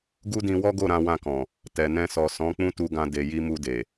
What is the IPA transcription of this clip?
ɡ u˦ d ĩ˧ w ɔ˦ ɡ o˦˨ ɾ ã˧ w ã˧ k ɔ̃˨ | t ɛ˨ n ɛ̃˧ s ɔ˨ s ɔ̃˨˦ k͡p ũ˦ t u˧ ɡ ã˧ d e˨ j i˧ m u˧ d e˨

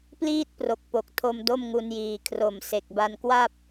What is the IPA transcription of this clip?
p l iː˥˩ t̚ p r o˨˩ k̚ p o˨˩ k̚ tʰ o˧ m d o˥˩ m ŋ u˧ n j iː˨˩ kʰ r o˨˩ m s e˨˩ k̚ b a˧ n k w a˥˩ p̚

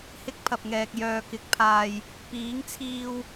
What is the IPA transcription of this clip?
h ɪ˧ k̚ pʰ ɐ˨ p̚ ŋ ɛː˨ k̚ j œː˨ k ɪ˨ k̚ pʰ aː˨ j | p iː˨˥ ŋ t͡sʰ iː˧ w

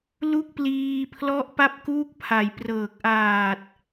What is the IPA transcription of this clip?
l u˥˩ k̚ p l iː˧ pʰ l ɔ˦˥ ʔ p a˦˥ p̚ k uː˥˩ k̚ pʰ a˩˦ j p r ɤː˨˩ k̚ ʔ aː˨˩ t̚

